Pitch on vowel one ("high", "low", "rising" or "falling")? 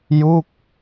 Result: falling